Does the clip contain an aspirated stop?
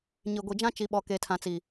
yes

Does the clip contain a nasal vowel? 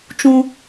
yes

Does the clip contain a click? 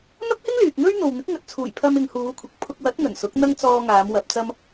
no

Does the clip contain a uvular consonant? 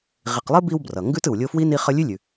yes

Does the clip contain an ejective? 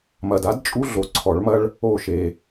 yes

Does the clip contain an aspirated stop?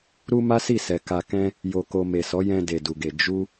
no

